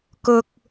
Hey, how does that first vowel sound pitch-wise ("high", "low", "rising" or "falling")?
low